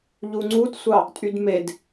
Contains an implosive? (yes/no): no